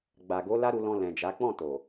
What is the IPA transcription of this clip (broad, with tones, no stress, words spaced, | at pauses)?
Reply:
ɡ͡ba˨ɡo˨˦ la˦ɾu˧lɔ̃˧ lɛ̃˨d͡ʒa˨˦ k͡pɔ̃˦˨ to˨